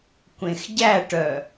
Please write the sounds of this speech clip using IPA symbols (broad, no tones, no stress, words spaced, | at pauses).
kʷẽxɟæʈœ